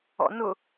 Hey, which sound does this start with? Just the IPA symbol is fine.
ɔ̰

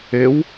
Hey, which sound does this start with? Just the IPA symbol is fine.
e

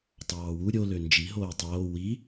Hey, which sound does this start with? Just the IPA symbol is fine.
tˤ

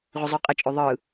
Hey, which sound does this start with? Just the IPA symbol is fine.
ʁʷ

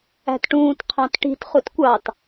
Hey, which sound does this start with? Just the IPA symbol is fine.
æ̤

